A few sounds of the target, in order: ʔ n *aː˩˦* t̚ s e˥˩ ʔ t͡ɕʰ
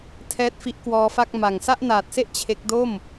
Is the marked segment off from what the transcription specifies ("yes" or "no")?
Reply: yes